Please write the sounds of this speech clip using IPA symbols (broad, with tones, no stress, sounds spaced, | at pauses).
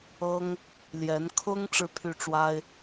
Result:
ɤ˥ ŋ | l j ɛ˧˥ n kʰ ʊ˥ ŋ ʈ͡ʂ ɻ̩˥˧ pʰ y˥˩ ʈ͡ʂ w a˥ ɪ̯